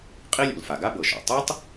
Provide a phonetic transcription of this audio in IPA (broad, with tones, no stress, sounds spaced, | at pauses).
qʼ i˥ lʲ ṵ˩ l f a˩ ɡ a˥ b ɤ˩ ʃ ɔ̰˩ tˤ ɯ˥ tˤ